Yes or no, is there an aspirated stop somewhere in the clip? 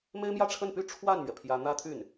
yes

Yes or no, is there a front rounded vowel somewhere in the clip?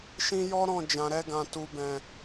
no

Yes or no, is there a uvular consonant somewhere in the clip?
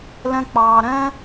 no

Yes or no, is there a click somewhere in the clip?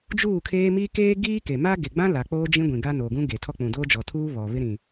no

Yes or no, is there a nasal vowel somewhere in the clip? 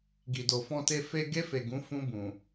yes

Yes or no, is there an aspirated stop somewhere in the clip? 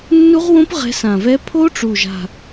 yes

